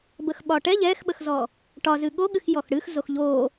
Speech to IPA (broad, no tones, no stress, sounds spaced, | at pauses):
b ə x ɓ ɒ ʈ ɛ ʎ ɛ x ɓ ə x z ɔ | ʈ ɒ z ɨ ɠ o ɠ ɨ x j ɔ x ɽ ɨ x z o x ʎ o